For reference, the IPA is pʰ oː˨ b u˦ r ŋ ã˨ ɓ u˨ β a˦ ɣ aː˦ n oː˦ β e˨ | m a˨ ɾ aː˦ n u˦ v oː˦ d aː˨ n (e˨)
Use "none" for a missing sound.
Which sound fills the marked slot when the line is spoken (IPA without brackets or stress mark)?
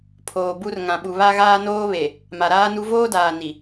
i˨